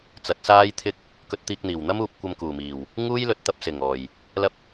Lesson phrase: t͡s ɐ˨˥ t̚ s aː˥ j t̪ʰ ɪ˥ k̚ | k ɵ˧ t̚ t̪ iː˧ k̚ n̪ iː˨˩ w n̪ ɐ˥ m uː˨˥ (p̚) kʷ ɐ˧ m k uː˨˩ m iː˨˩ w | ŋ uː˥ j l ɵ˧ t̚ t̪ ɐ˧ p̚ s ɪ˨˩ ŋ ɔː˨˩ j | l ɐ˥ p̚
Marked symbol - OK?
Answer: yes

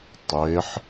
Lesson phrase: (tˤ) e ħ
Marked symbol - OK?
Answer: yes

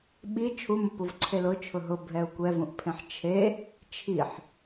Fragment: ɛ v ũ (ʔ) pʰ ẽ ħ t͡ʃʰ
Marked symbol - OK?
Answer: yes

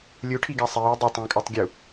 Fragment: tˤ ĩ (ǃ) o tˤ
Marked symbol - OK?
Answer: no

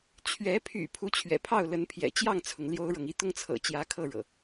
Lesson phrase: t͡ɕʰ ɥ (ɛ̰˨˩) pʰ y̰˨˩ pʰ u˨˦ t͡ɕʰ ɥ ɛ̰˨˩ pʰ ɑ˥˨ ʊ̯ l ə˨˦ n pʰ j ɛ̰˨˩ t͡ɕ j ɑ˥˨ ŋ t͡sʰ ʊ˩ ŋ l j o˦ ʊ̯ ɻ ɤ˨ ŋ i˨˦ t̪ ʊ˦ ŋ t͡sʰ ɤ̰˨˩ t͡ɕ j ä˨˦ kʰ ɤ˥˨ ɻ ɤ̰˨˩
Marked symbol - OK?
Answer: no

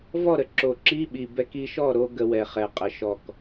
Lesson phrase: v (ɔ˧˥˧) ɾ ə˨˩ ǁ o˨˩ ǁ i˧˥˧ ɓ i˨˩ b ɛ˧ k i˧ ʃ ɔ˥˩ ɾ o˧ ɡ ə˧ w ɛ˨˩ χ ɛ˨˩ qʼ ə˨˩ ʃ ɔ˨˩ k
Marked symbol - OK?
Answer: no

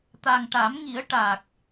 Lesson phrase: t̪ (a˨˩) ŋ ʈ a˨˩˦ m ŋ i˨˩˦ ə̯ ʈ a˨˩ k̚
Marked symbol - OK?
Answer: yes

